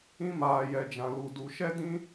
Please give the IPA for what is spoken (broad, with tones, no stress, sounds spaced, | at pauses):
ĩ˧ m aː˨ j ɛ˨ d͡ʒ ã˨ l u˨ d u˨ ʃ ɛ˦ d ĩ˦